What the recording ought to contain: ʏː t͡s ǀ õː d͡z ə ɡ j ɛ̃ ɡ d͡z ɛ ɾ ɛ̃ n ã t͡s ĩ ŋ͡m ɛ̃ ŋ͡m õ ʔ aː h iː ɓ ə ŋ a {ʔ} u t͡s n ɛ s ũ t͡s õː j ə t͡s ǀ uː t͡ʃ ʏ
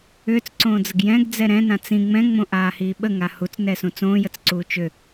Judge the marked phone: incorrect: h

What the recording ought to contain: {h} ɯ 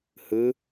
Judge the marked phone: correct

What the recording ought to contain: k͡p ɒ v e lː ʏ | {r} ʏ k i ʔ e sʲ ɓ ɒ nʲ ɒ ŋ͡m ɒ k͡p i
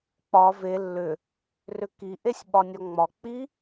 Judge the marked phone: correct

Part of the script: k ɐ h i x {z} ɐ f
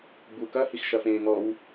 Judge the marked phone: incorrect: ʃ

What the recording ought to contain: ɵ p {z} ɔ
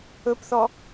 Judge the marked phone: incorrect: θ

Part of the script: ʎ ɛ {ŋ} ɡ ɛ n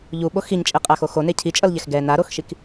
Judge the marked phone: incorrect: x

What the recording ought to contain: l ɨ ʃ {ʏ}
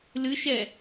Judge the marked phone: incorrect: ɛ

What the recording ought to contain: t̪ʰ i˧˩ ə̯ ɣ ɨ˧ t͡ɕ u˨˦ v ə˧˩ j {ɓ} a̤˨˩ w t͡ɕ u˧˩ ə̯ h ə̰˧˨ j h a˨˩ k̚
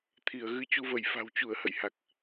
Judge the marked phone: incorrect: f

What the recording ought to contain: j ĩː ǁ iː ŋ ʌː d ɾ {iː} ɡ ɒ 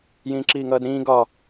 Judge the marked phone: incorrect: ĩː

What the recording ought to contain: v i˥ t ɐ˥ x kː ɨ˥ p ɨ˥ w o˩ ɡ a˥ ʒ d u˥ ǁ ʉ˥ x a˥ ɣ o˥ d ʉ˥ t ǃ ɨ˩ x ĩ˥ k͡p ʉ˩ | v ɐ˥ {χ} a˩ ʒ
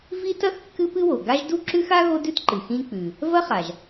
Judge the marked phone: correct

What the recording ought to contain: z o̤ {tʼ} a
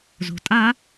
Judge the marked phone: correct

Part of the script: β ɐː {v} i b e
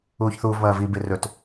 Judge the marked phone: correct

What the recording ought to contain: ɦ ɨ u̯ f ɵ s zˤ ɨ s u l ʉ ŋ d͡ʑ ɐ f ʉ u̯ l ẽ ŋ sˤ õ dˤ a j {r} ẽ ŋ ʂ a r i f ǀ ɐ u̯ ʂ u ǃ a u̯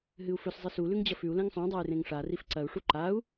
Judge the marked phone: correct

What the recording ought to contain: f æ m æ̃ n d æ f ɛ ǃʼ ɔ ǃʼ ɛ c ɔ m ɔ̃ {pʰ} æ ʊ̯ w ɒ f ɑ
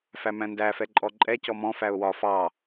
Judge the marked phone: incorrect: f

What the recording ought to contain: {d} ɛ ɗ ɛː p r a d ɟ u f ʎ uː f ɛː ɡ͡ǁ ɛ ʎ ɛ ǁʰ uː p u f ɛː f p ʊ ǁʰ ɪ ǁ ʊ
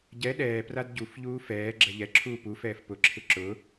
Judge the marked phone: incorrect: ɟ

